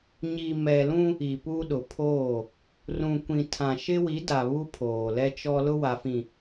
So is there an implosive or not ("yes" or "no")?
yes